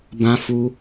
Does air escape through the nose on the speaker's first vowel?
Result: yes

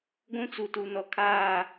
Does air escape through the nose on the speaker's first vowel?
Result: yes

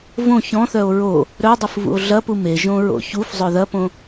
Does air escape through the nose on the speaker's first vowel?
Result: yes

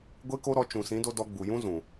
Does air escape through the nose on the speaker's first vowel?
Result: no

